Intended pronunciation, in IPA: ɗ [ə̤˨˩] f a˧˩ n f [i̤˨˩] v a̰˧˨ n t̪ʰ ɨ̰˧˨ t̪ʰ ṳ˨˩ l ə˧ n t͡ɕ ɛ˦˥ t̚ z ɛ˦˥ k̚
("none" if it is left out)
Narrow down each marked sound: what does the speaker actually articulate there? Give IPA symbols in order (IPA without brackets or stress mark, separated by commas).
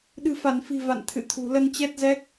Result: ɨ̤˨˩, i̤˨˩